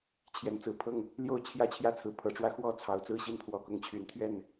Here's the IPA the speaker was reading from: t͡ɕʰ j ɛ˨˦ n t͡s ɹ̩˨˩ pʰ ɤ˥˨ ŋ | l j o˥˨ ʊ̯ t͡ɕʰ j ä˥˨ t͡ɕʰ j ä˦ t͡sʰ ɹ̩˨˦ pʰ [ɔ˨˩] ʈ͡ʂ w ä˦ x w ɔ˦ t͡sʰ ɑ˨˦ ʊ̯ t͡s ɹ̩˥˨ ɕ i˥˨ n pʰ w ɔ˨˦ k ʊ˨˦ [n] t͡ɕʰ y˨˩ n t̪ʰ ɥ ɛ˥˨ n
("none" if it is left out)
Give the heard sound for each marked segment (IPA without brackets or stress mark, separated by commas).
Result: ɤ˨˩, ŋ